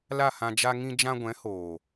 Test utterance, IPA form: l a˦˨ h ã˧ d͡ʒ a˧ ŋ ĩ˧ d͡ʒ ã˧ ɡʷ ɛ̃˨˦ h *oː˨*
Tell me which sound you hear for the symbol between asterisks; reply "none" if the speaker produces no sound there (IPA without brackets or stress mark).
oː˨